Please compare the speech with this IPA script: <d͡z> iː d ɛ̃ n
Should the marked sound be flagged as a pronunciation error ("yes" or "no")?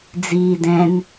no